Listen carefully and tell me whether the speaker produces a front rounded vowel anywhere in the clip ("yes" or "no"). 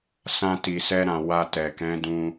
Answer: no